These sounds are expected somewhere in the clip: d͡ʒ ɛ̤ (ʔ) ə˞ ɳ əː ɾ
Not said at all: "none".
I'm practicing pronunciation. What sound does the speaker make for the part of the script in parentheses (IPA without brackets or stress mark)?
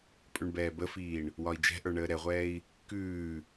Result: ʔ